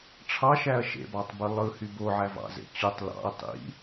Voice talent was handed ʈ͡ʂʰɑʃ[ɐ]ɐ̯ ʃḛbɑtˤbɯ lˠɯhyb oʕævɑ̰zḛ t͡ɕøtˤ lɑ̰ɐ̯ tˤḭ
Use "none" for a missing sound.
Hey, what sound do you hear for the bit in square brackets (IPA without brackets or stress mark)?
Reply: æ